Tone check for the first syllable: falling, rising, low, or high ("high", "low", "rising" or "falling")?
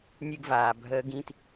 high